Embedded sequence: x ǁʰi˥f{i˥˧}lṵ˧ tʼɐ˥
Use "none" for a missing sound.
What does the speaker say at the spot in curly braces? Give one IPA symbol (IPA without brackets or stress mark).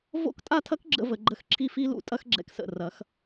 i˥